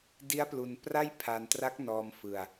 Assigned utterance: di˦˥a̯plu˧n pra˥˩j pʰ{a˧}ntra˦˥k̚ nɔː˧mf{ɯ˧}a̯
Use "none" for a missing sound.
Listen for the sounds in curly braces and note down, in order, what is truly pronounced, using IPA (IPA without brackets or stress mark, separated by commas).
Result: a˧, ɯ˧